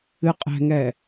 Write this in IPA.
ɨqʼɛ̤ŋɛ

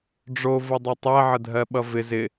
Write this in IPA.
ɖ͡ʐovʌ dˤʌtˤɛ ʕədʱɜɓʌvɪ zɪ

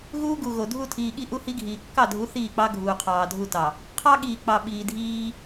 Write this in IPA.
ɣuː˦ɡu˨ɣo˨ dʱu˦˨tʰiː˨ɠi˦ ʔu˦hi˦ɡʱiː˨ kːɑ˦˨dʱu˨˦ θiː˦˨k͡pɑ˦ ɡʱuː˨qʰɑː˨dʱu˦˨ tɑ˨ | qʰɑ˦ ɠiː˨k͡pɑ˨ ɓiː˨dʱiː˦

